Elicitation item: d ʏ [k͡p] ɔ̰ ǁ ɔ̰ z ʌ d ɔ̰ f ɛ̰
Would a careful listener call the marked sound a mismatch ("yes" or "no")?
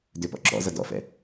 yes